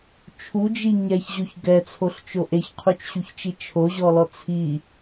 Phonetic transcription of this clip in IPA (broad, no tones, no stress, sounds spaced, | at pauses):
t͡ʃʰ u d͡ʒ i ɲ ɛ ç ʑ o ç ɡ ɛ t͡sʰ o ɬ t͡ʃ o ʔ e ç qʰ u t͡ʃ ɕ u ç t͡ʃ i t͡ʃʰ o ʑ ɔ l ɔ t͡sʰ i